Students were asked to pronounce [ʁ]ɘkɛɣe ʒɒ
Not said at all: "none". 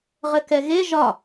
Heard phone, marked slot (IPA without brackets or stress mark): ʁ